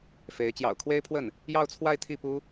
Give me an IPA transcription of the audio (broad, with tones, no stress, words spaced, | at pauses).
fe˧˥ɪ̯ t͡ɕjɑ̰˨˩ʊ̯kʰwe˥ɪ̯pʰwə˥˩n | jɑ˥˧ʊ̯t͡sʰwa˥˧ɪ̯t̪ʰi˥˩ pu˥